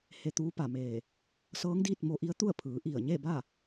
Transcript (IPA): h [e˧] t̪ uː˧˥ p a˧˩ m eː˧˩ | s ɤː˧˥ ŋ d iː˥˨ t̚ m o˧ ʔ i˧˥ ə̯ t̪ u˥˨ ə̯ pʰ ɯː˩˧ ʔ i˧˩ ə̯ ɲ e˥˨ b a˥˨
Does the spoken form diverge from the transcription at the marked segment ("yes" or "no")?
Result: no